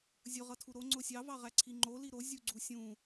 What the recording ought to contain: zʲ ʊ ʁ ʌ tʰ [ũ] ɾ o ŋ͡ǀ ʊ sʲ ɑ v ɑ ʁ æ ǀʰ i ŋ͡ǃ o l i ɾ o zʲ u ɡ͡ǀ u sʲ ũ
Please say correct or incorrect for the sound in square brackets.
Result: incorrect: u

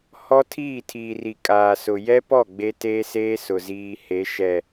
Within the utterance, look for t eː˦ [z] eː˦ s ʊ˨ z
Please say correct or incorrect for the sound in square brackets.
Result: incorrect: s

